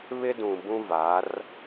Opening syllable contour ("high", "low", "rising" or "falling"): high